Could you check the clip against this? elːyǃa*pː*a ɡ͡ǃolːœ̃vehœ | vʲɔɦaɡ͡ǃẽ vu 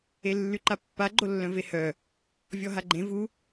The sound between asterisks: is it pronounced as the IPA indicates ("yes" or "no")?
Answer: yes